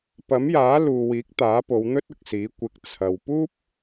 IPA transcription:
p ɐ˨˥ m j aː˨˥ l uː˨ w iː˨˥ k̚ t̪ aː˨˥ p o˨˧ w n̪ ɵ˥ t̚ ʊ˨ k̚ s iː˨˥ kʷ ɪ˨ k̚ t͡sʰ ɐ˨ w p uː˥ p̚

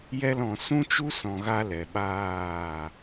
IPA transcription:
j ɛ˧ l ɔ̃˨ s ũ˦ t͡ʃ u˦ s ɔ̃˨ ɣ a˧ l ɛ˨ ɓ aː˦˨

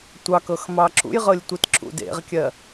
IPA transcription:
tʷ ɑ k ɤ x m ɑ ǁ ṵ j ʁ ɤ lʲ tʷ i t ǁ ṵ d ḛ ʁ kʲ ɜ

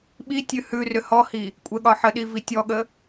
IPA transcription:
ɓ i tʲ ʉ h ʉ r ʏ h ɔ h i | kʷʼ ɛ ɠ ɒ ħ ə ɗ i v i tʲ ɔ ɠ ə

